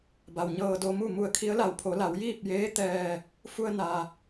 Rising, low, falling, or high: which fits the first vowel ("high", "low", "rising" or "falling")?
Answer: low